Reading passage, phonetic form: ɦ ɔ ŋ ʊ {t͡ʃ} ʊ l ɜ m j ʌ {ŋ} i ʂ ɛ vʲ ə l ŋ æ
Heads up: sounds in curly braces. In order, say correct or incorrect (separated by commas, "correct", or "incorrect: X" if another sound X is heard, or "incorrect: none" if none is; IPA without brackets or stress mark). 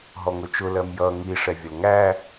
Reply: correct, correct